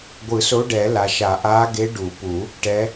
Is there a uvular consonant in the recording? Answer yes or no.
no